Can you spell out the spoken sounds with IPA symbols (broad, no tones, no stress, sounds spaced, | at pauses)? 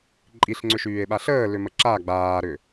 ǃʼ i ɬ ŋ͡ǀ ʏ ʃ yː e̯ ɓ a ɬ əː l ʏ m ə ǁ a ɡ͡b aː ɾ ʏ